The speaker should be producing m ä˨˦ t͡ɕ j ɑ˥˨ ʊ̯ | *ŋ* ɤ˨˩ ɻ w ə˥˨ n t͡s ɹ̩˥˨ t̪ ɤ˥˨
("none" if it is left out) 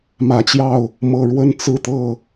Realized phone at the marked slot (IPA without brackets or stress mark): m